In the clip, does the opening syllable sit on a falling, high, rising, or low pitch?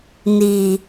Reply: low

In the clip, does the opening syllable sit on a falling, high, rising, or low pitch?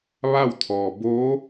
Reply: falling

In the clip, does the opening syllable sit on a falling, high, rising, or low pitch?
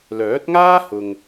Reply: rising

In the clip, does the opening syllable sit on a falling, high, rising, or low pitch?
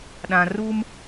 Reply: low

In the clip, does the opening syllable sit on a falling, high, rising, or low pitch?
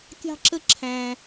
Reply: high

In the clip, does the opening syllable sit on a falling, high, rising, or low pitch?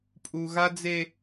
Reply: high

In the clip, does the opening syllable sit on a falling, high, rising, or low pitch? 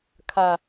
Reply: low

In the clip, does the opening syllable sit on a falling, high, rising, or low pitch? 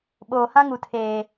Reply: low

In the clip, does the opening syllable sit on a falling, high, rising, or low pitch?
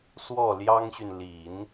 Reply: falling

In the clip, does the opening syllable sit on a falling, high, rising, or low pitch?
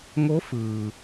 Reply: rising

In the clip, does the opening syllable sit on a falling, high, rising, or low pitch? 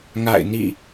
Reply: falling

